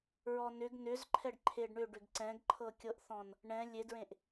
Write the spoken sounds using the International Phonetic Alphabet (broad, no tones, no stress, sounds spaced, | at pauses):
ɹ ɔ n ʏ ɡ n ʏ z ǃʰ ɛ ɖ ǃʰ e ɖ ɳ ʏ ɖ ʏ ɡ ǀ ɛ̃ ɡ ǃʰ ɤ kʲ ɤ ʔ θ ɔ̃ n | ɳ ɛ̃ lʲ e d ɹ ẽ ʔ